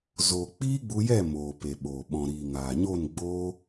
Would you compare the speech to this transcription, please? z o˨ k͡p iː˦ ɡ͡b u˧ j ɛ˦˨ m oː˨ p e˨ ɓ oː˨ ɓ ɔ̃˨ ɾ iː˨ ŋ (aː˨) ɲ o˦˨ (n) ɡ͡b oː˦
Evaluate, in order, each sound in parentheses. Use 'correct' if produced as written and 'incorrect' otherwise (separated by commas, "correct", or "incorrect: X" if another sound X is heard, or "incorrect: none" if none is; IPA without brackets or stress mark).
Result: correct, correct